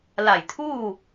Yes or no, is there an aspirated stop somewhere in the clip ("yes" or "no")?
yes